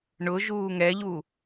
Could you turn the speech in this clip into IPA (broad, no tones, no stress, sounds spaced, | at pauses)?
ɳ ʊ ʒ uː ŋ ɛ ʎ u